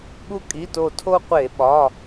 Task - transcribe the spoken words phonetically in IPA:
ɠ u˦˥ kʼ i˩˧˩ t o˧˩ tʰ o˧ qʷ e˧˩˧ ɓ ɒ˩˧˩

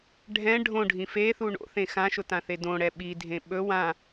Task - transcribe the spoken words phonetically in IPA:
ɖʱ ɛ̃ ɖʱ õ ɖʱ ĩ f e θ u ɳ o̰ θ ẽ x ã ʃ ʊ t ã θ e d õ ɽ ɛ ɓ i dʱ ẽ ɓ ɵ w ã

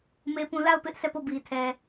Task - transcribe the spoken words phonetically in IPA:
m e˦ p ũ˦ l a˦˨ ʊ̯ p ɪ˦ ʔ s ɛ˦˨ p o˦˨ b i˨ tʰ ɛ˨

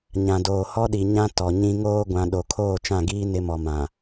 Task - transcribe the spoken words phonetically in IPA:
ɲ ã˨ d oː˨ h ɔ˦ ɗ i˨ ɲ ã˦ t ɔ˨ ɲ ĩ˦ ŋ oː˦ ɡʷ ã˨ ɗ o˨ kʰ oː˦˨ t͡ʃ ã˦˨ ɡ iː˦ n ɪ˦ m ɔ˨ m ã˨

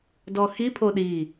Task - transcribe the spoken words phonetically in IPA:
d ɔ x i pʰ o ɗ i

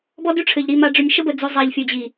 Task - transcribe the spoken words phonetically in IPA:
b ɔ˦ d ʉ˦ ʈ͡ʂʰ ɘ˨ ʎ ɾ i˨ m a˨ ɖ͡ʐ ʏ˨ nʲ ʃ ə˦ b ə˨ d͡z ʉ˨ zˤ a˨ ʎ fʲ o˨ d͡ʑ i˨

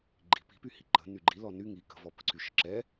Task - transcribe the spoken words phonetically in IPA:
ɡ͡ǃ i̤ p i̤ p y h i ǃ ə̤ n y ɡ͡ǃ i l ɔ n y ŋ i k ə̤ v ɔ p ə̤ ǀ y ʃ ə̤ ǁ ɛ

